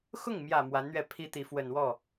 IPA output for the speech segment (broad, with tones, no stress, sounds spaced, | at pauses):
x ʊ˥˩ ŋ m j ä˨˩ m w a˧˥ n n̪ ɥ ɛ˥˩ pʰ i˥ t̪ i˧˥ f w ə˨˩ n w ɔ˥˩